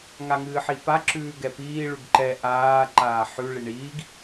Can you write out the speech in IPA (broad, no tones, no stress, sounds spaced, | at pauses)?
ŋ a ŋ ɨː ħ i p a ǁ ʉː ɡ ɛ p iː ɭ ʉ ɡ ǃ ɛ ʔ aː ǃ aː ħ ʉ ɭ i ɳ iː ɡ